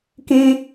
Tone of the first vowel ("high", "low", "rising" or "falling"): high